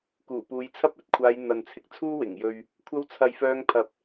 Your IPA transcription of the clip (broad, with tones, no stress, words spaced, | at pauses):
kuː˨˩puː˨˧jt͡sʰɐ˥p̚ ɵ˨˥t̚kʷʰaː˨˧j n̪ɐ˨nt͡sʰɪ˧k̚ t͡sʰuː˥wɪ˨˩ŋjɵ˧ɥ | kʷʰɐ˧wt͡sʰɐ˨jfœː˧ŋ pʰɐ˧p̚